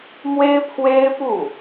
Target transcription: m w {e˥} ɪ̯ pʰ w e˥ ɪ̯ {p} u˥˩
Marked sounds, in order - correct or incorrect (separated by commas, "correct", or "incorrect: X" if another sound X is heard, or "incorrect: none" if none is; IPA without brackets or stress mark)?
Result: correct, correct